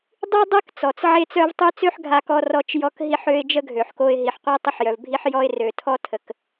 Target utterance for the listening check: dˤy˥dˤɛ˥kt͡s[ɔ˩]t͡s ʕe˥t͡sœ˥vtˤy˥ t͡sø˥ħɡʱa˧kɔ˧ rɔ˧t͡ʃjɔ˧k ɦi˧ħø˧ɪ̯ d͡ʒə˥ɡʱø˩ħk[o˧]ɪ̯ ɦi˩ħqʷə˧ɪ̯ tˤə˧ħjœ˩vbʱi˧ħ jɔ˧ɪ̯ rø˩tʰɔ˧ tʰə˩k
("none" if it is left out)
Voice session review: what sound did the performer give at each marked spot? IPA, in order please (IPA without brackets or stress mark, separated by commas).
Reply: ɔ˩, o˧